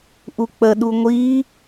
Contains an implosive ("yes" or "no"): yes